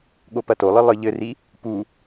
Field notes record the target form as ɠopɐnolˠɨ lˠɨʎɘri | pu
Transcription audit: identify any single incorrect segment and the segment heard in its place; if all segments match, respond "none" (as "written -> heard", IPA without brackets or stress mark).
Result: n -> t